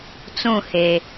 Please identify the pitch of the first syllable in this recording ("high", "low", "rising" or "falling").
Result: falling